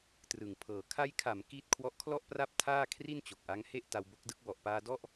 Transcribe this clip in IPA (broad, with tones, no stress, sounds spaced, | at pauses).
t r ɯ˨˩ ŋ pʰ ɤː˨˩ kʰ a˧ j kʰ a˩˦ m k i˥˩ t̚ kʰ w ɔ˦˥ ʔ kʰ l ɔ˥˩ ʔ p r a˥˩ p̚ tʰ aː˥˩ kʰ r i˥˩ n t͡ɕ o˨˩ k̚ ʔ a˦˥ ŋ h e˥˩ ʔ t a˧ w b o˦˥ k̚ d ɯ˦˥ k̚ w ɔ˨˩ ʔ p aː˧ d ɔ˥˩ ʔ